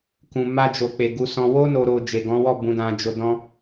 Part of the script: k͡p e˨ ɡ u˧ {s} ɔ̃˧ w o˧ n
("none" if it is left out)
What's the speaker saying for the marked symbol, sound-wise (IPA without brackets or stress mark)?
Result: s